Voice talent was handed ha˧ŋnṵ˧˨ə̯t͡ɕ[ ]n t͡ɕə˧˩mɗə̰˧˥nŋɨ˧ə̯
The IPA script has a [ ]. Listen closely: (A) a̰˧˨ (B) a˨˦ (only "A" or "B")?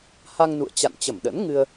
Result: A